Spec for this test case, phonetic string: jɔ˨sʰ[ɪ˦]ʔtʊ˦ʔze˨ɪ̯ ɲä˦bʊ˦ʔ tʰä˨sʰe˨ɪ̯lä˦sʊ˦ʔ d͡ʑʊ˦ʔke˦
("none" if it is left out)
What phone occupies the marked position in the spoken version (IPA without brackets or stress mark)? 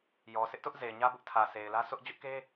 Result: ɪ˦